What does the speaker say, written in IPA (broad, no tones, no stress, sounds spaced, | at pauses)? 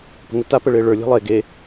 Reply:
p ə̤ ŋ ʊ t a p ə ɭ e ɭ ə˞ lʲ e̤ lˠ e ɡ e